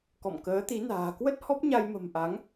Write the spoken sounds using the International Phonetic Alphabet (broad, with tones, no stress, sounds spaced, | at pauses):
k ɔ̰˧˨ m k əː˨˦ t̪ i˨˦ n a̤ː˨˩ k w ə˦˥ t̚ h ɔ˦˥ p̚ ɲ a˧ j m ə̤˨˩ m ʔ a˨˦ ŋ